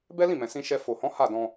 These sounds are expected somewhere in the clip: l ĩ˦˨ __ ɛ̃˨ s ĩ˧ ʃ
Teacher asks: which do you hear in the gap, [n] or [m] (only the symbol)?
m